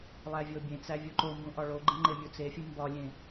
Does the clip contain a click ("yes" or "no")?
yes